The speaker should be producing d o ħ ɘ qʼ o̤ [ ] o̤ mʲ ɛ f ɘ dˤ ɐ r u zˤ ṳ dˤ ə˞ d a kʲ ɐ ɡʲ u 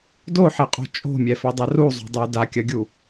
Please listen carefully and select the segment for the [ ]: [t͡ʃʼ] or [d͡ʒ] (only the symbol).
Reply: t͡ʃʼ